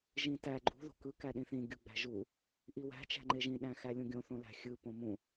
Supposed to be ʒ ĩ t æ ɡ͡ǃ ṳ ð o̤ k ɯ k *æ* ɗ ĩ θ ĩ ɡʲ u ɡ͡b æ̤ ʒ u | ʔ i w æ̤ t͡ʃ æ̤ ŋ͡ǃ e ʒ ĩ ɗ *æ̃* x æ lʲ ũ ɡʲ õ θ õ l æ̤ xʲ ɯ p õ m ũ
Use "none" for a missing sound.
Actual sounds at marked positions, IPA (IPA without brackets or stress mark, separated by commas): æ, æ̃